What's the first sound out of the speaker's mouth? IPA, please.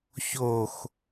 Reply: ç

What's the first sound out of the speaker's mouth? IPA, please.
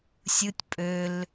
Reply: sʲ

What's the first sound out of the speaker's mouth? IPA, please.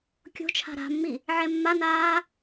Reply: kʲ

